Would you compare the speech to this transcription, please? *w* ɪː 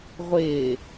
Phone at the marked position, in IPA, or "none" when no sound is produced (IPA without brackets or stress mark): ʁʷ